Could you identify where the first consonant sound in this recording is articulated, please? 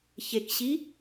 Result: palatal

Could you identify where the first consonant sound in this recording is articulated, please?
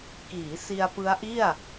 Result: velar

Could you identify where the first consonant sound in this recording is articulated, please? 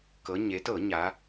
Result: velar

